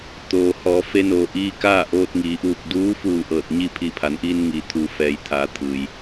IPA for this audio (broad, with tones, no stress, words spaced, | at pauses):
t̪oː˩hɔː˩˧ fe˧noː˩ʔiː˧ kaː˥˨ ʔoː˧t̚ŋiː˩˧ʔuː˧˩k̚ duː˧˥fuː˧˩ ʔɤː˧˩t̚ɲi˥˨ pʰiː˧˩pʰa˩˧nʔiː˧nŋiː˩˧ t̪ʰuː˩ fɛː˩jt̪ʰaː˩˧ t̪ʰɯː˩j